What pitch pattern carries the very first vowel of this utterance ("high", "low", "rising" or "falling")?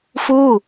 falling